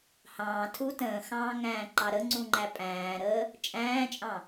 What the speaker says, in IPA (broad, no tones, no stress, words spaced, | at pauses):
hɑ̃ːtʰu tə̃ːxɑ̃ːŋæ̃ːǃɑ ɾəŋ͡ǀũŋ͡ǃæ pʼæ̃ːɾəː | t͡ʃʼæ̃ːt͡ʃʼɑ̃